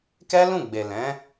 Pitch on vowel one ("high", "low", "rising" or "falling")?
high